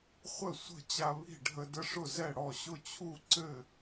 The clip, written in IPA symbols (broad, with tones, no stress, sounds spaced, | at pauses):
χʷ ə˥˨ sʷ ə̤˥˨ t͡ɕ a˦ β i̤˥˨ ɖʱ ə˦ d ə˦ ʂ ʊ˥˨ z ɛ˥˨ ɽ ɔ˥˨ ɕ ʊ˥˨ t͡ɕʰ u˥˨ ǀ ɘ˥˨